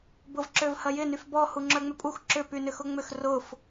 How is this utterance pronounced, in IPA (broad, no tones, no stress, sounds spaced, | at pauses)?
b ʊ v ǁ ø v h ɐ j ɪ n y f b ɔ h u ŋ͡ǁ œ ŋ͡m ʏ pʼ u x ǁ ʏ p y n ʏ x ʊ ŋ͡m ʏ x r ʊ f